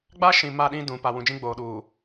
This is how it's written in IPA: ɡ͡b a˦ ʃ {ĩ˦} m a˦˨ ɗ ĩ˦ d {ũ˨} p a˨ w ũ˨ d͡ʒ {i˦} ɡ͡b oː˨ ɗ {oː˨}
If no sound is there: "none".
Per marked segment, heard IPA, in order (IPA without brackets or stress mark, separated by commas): ĩ˨, ũ˨, ĩ˦, uː˨